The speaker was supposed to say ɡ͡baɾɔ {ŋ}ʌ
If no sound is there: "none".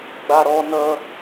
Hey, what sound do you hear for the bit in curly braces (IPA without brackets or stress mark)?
n